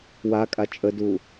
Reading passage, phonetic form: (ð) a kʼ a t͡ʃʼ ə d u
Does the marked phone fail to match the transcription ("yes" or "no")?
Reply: yes